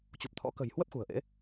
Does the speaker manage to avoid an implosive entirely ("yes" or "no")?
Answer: yes